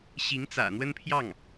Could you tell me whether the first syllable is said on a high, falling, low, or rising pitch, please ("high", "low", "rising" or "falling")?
rising